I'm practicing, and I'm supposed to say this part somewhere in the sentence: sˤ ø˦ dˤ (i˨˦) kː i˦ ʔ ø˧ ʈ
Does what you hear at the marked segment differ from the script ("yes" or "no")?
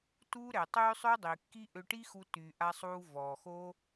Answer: yes